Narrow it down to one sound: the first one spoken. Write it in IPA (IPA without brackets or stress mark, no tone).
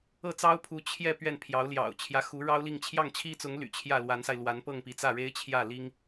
ɤ